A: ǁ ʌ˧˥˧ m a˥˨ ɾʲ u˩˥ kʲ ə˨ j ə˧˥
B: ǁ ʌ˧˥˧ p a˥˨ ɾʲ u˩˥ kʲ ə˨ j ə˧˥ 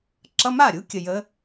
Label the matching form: A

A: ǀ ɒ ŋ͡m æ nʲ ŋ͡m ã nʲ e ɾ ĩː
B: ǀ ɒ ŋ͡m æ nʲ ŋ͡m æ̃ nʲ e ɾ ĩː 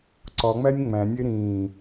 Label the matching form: B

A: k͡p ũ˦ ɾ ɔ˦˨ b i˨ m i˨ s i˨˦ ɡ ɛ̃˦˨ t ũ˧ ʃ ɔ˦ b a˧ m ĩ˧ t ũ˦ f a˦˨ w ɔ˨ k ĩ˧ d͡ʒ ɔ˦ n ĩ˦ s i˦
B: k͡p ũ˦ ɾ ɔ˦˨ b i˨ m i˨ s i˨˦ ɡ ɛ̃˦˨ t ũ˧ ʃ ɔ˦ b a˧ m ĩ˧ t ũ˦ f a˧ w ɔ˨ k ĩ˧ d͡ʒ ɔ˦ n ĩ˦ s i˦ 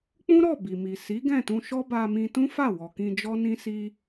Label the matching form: A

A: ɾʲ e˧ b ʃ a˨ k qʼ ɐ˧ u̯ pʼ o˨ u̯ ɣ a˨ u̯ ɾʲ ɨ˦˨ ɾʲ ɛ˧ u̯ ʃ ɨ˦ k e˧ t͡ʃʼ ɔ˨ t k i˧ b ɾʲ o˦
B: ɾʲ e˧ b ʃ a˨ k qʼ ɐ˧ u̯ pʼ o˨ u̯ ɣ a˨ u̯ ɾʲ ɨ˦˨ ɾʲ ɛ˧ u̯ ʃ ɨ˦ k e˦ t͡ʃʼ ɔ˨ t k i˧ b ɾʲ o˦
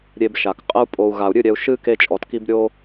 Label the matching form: A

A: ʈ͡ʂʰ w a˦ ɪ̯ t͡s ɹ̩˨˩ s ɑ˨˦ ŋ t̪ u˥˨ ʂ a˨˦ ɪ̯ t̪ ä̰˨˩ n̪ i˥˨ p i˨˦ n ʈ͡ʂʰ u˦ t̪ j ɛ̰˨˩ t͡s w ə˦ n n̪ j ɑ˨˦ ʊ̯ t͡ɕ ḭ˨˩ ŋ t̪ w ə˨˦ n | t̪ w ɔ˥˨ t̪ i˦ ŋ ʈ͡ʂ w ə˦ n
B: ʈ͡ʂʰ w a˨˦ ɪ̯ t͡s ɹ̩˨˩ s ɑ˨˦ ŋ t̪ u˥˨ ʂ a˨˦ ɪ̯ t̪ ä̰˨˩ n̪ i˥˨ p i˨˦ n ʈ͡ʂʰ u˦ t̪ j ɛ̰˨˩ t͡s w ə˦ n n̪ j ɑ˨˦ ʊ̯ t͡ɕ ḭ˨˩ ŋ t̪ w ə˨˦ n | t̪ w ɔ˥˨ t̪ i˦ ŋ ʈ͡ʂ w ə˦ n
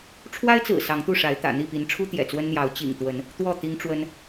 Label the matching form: A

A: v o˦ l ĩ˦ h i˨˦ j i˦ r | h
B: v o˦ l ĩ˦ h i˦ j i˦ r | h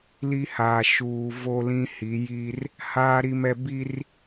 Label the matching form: A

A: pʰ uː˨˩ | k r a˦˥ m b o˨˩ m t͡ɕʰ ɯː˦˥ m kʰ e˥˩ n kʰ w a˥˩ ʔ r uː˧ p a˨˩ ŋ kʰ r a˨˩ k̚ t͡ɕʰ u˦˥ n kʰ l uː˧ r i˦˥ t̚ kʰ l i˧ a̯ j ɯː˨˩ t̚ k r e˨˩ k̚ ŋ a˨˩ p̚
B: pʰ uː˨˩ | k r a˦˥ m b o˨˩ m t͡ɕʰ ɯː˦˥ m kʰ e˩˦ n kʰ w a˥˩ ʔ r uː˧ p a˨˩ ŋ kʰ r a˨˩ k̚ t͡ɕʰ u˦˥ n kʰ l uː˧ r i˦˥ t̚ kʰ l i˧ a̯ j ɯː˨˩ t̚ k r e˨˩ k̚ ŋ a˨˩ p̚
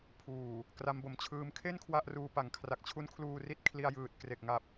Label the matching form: A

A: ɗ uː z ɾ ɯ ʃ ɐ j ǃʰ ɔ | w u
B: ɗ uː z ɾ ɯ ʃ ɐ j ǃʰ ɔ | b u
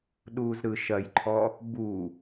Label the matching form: B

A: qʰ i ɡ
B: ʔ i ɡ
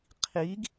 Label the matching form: A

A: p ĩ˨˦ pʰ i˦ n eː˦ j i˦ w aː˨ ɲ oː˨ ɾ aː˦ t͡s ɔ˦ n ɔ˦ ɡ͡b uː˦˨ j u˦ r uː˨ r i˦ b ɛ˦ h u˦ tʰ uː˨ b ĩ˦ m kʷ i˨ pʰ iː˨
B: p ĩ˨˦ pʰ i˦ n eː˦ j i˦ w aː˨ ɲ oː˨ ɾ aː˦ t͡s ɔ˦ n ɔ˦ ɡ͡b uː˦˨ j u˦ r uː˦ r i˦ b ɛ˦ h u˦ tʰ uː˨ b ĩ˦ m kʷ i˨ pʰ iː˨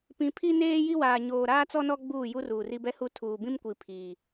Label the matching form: A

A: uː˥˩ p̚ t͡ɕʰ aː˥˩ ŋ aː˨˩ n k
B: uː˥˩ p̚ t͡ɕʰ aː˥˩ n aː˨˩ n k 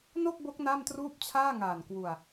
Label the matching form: A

